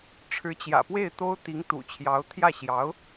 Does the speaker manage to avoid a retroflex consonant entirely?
no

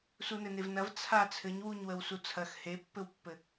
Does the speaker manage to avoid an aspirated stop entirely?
no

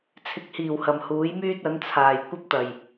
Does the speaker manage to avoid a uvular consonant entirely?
yes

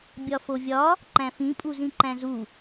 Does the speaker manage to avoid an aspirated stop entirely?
yes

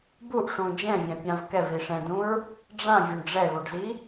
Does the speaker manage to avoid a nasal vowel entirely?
no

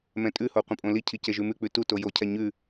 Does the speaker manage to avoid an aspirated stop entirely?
no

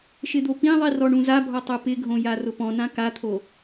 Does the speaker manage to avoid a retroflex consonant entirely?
no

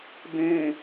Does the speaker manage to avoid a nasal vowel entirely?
no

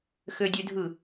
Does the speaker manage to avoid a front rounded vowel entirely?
no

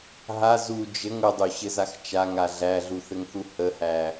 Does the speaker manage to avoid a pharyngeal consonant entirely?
yes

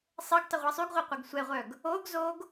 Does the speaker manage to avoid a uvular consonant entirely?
no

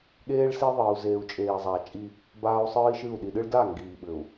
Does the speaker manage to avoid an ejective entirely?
no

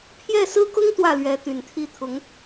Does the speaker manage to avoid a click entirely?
yes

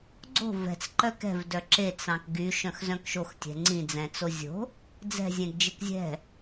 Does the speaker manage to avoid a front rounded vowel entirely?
no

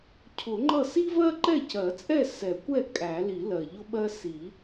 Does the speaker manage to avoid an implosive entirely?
no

